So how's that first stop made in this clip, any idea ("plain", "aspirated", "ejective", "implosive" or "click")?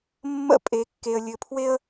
ejective